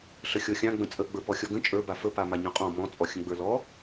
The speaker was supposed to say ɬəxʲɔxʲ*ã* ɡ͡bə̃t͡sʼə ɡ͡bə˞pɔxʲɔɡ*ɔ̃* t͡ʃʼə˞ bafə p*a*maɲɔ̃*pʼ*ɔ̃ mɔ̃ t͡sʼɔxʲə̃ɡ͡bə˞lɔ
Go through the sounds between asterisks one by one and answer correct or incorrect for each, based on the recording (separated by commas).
correct, incorrect, correct, incorrect